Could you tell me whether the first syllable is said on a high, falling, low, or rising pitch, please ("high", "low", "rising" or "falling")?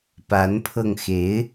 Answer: rising